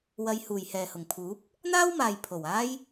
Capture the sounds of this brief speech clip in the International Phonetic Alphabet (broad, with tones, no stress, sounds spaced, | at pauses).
w ɐ˧ j h uː˨˩ j h ɛː˨˩ h ʊ˨˩ ŋ pʰ uː˨˥ p̚ | n̪ aː˥ w m aː˨ j pʰ o˨˩ w aː˥ j